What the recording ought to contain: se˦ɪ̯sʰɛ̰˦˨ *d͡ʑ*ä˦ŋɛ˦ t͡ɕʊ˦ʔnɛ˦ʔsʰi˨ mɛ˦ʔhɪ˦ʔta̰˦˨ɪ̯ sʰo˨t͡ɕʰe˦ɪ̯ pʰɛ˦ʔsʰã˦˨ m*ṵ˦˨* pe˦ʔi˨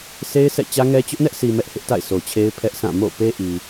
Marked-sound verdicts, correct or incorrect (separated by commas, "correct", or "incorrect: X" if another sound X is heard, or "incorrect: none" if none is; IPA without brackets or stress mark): incorrect: t͡ɕ, incorrect: o̰˦˨